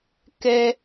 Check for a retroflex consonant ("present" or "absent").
absent